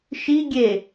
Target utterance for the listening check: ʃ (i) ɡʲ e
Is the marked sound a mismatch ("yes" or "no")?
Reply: no